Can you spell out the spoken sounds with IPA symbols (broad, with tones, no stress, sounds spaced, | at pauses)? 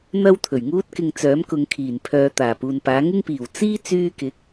n̪ ɐ˥ w t̪ʰ ɵ˨˩ ɥ ŋ uː˥ t̚ k ɪ˧ ŋ t͡s œː˨˥ m k ʊ˨˧ ŋ kʰ iː˨˩ n pʰ œː˨˧ t̪ aː˨˩ p uː˨ n p aː˨˥ ŋ ɪ˥ ŋ p iː˨˩ w t͡s iː˥ t͡s yː˧ k ɪ˨˥ k̚